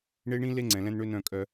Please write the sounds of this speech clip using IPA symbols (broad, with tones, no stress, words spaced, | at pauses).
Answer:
ɳe˦ɳĩ˦ le˦ ŋ͡ǀɛ̃˨lɛ̃˦n ɳø˦nœ̃˦˨ kʼœ˦